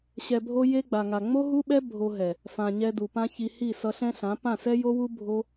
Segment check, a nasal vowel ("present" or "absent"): present